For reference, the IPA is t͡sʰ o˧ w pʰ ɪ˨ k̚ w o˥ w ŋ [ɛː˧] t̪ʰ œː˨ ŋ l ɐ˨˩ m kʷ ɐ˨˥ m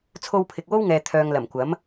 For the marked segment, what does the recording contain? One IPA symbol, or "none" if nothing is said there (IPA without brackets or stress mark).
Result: ɛː˨